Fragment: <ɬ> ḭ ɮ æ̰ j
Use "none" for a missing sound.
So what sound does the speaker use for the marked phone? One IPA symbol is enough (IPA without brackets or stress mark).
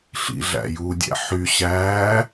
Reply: ɬ